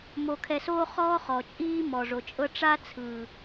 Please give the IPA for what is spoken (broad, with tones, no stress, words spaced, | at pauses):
mo˧kʰɛ˧soː˦ χɔː˦χɔ˨t͡ʃʼiː˦ mɔ˨ʐo˨ t͡ʃʼɤ˧ ʈ͡ʂa˦t͡sʰɯ˨